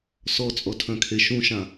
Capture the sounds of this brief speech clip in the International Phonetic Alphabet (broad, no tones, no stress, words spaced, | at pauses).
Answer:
sɔt͡sʼɔtʰœ̃kʰe ʃũʃã